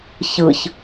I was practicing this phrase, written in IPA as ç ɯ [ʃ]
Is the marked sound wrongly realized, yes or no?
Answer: yes